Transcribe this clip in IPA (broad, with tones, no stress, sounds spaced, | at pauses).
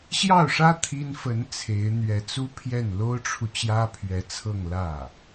ɕ j ɑ˥˩ ʊ̯ ʂ ä˥ t̪ʰ i˥ n f ə˧˥ n t͡sʰ e˧˥ ɪ̯ n̪ ɥ ɛ˧˥ t͡s u˥ pʰ j ɛ˥˩ n l o˥ ʊ̯ ʈ͡ʂʰ u˨ t͡ɕ j ä˥ pʰ ɥ ɛ˧˥ t͡sʰ ɤ˥˧ ŋ l ä˥˩